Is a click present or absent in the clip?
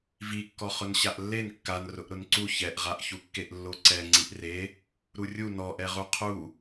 present